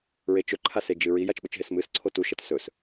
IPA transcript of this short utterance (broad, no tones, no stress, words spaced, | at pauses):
ɹet͡ʃɵ ǃʰased͡ʒɨɹi jat͡ʃɓɵt͡ʃɦesmɨs ǀʰotu ʃɐtsɵs